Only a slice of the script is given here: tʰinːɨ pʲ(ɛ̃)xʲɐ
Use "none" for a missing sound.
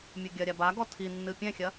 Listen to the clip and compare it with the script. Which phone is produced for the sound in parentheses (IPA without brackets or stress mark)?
ɛ̃